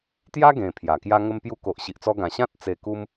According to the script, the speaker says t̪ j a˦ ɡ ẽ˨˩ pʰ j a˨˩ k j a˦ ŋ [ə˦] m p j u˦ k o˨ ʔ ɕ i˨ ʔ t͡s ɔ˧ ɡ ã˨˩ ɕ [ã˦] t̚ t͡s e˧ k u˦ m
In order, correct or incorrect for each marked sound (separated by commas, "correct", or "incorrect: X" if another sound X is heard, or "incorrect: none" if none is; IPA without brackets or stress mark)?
correct, correct